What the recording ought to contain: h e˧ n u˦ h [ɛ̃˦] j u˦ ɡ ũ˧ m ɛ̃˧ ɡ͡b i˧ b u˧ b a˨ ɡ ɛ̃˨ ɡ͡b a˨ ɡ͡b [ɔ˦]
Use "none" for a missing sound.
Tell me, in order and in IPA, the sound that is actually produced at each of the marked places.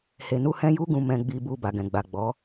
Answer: ɛ̃˦, ɔ˨˦

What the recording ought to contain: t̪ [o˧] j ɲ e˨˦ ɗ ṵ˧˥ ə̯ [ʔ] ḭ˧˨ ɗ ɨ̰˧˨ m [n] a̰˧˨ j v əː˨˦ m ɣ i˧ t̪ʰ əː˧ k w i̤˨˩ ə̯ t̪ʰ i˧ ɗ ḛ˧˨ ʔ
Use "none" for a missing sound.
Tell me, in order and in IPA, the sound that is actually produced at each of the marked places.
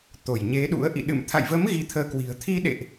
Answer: o˧˩, ʔ, t̪ʰ

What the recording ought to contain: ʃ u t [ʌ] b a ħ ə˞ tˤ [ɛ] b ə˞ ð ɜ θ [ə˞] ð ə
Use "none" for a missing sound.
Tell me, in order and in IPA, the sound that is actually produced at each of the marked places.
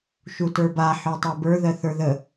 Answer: ə˞, ɜ, ə˞

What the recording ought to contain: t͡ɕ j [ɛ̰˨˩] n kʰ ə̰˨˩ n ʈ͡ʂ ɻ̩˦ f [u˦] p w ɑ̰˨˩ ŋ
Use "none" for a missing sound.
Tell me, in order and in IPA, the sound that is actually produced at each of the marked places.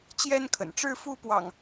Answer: ɛ˦, u˦

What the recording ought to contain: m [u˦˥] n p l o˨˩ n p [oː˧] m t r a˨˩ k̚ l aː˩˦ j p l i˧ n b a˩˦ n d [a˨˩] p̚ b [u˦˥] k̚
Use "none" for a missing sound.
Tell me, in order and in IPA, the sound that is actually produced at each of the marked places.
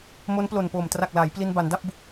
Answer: o˦˥, oː˨˩, a˥˩, u˦˥

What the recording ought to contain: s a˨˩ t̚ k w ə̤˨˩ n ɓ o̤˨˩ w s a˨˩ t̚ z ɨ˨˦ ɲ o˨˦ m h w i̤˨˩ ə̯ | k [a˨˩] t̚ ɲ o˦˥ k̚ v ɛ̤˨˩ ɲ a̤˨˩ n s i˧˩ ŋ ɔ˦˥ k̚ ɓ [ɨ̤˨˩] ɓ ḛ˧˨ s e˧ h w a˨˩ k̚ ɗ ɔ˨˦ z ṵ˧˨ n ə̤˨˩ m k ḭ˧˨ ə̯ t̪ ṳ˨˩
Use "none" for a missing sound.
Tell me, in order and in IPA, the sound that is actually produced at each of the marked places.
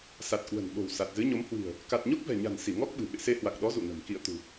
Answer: a˨˩, ɨ̤˨˩

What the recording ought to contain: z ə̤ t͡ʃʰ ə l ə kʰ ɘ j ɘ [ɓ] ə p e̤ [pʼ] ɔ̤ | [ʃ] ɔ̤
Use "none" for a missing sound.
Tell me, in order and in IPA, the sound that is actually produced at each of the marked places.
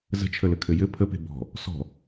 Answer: pʰ, b, s

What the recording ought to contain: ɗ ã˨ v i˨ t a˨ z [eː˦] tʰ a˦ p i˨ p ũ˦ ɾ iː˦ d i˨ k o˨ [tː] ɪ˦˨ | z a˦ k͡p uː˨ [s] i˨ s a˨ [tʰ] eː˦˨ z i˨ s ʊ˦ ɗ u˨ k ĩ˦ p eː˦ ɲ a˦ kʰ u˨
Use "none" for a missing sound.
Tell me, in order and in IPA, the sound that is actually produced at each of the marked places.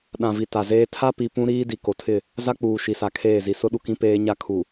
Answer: eː˦, tʰ, ʃ, kʰ

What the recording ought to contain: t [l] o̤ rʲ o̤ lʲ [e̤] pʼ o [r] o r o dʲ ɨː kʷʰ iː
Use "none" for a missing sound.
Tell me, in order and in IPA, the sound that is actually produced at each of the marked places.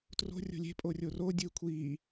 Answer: r, e̤, rʲ

